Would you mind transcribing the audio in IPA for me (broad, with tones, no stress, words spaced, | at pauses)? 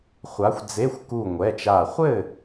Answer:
χʷa˨˥xʷd͡ze˧˥˧xʷ ku˧˩ŋʷɛ˩˧˩t͡ʃa˧˩ χʷɘ˥˨